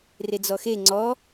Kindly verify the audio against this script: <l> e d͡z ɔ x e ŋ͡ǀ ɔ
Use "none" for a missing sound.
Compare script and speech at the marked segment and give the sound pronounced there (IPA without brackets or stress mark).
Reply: r